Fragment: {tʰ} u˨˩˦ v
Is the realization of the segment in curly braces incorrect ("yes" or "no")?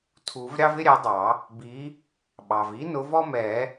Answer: no